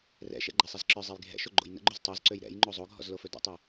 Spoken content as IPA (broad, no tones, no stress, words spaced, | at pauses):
rɛ̰ʃɛ̰ ɡ͡ǃɛsˤɛzǁə˞zˤɛj ɡʱɛ̰ʃo ɡ͡ǃo̰jnə̰ɡ͡ǃøz tˤøzǀøj ɾɛ̰j ŋ͡ǃozˤoɡʱɔ̰z lofɵdɛ̰tˤɵ